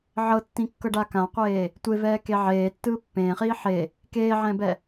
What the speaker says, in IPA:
ʕɤtːĩkːɤɖa kãqʷeː | tʷevɛːke ʕeːtːɯː pːẽːχiː ħe | keːʕɛ̃bɛ

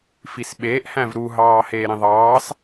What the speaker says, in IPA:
fisɓeːʔ hæ̃vɾuɦɑː heːɾĩðˤɑːs

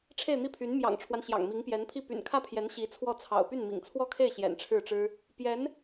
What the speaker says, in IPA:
ʈ͡ʂʰe˥˧ɪ̯n̪i˥˩pʰy˧˥n mjɑ̰˨˩ŋʈ͡ʂʰwa˦n ɕjɑ̰˨˩ŋmi˧˥ŋpjɛ˧˥npʰi˥˩ py̰˨˩nkʰä˥˩pʰjɛ˧˥n ɕi˧˥t͡sʰwɔ˥˩t͡sʰɑ̰˨˩ʊ̯ py˥˩nmḭ˨˩ŋt͡sʰwɔ˥˧kʰe˥˩ɪ̯ ɕjɛ̰˨˩nʈ͡ʂʰɻ̩˥˩ʈ͡ʂɻ̩˥ | pjɛ˧˥n

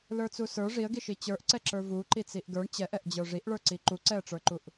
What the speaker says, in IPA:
lə˞t͡susə˞ ʐiə̯ɡiʃi t͡ɕə˞ʔǀɛǁə˞ vu ǃit͡siʔɡə˞ɳ t͡ɕɛʔɛʔd͡ʑə˞ ʐiʔɭə˞ǀi ǃuǀɛə̯ʈ͡ʂə˞ǃuʔ

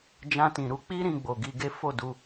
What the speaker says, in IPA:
d͡ʒã˧tĩ˨ ɾu˧k͡pi˦ ɾĩ˧ɡ͡bo˨ɡi˧ɡe˦ fo˦˨du˧

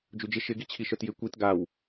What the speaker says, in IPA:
d͡ʒud͡ʒɪ ʃɪɡit͡ɕʰi ʃœtjɪ kʷit ɡaw

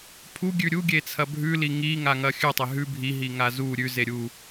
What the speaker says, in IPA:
pʰuɡʲʉ ɾʲuɡʲe t͡sʰɐbʱʉli ŋi ŋaŋɐxʲʉ tˤeɦʉ bʱiɦiŋa zu ɾʲʉze ɾʲu

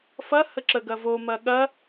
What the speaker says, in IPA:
fɐhə ǁəɡɐvomɐ ɠɐ

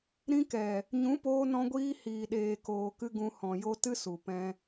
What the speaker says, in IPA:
ɾĩ˧kɛ˨ | ɲũ˨˦poː˧nɔ̃˧ɡʷiː˧ hiː˨ɗeː˨koː˨kɨ˧ ɡũ˧ hɔ̃˨jo˧ tɨ˦su˨ pɛ̃˧

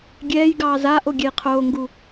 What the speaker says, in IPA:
ɡʲɛːjɡɑː zaːʔoɡʲɛj qʰoːŋɡu

